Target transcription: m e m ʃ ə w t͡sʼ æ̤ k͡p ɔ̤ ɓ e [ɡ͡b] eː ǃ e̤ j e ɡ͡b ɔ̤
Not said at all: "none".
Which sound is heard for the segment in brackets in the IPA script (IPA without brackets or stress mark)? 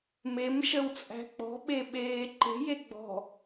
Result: ɓ